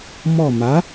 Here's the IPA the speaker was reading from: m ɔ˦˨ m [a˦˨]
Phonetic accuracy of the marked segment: incorrect: a˨˥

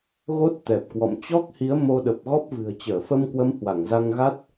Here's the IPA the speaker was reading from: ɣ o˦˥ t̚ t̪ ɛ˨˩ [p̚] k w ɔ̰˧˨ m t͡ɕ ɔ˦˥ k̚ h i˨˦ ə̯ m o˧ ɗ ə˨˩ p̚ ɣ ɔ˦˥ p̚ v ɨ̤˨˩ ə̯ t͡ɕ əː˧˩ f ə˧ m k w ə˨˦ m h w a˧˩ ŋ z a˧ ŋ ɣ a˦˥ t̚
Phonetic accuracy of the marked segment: correct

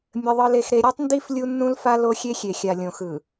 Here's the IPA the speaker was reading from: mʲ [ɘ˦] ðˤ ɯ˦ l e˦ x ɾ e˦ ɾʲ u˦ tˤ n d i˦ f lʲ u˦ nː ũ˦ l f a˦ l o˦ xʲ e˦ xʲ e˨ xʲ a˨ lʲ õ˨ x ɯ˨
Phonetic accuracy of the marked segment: correct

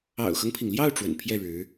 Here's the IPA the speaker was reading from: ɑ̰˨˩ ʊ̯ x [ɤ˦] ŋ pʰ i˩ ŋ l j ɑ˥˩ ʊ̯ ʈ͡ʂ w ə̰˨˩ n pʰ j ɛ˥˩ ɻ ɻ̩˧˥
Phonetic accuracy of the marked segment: correct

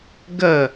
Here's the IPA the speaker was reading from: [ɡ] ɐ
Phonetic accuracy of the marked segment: correct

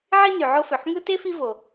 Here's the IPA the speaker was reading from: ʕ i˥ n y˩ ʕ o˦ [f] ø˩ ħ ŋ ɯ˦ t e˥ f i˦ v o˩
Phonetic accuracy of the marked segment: correct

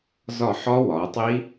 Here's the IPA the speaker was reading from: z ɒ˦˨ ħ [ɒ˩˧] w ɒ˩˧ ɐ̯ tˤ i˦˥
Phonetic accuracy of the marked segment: incorrect: ɒ˦˥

